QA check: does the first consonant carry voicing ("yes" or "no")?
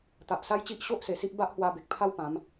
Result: no